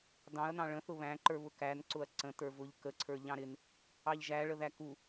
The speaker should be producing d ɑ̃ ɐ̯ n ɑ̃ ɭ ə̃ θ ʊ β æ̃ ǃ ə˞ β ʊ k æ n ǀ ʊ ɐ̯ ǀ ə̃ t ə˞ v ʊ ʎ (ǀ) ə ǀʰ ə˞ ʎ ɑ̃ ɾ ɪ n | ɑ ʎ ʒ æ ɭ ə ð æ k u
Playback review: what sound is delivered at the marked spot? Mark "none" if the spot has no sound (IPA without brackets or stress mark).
k